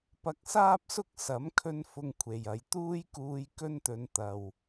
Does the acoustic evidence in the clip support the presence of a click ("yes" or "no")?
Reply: no